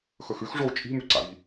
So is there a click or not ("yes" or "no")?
yes